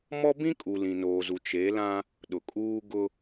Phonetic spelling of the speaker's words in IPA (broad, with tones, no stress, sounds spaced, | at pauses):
m ɔ˦ b ĩ˦ kʼ u˨ l ĩ˨ n oː˨ z u˨ t͡ʃ e˨˦ l ã˦ | ɗ ʊ˨ kʼ uː˦ ɡ ʊ˦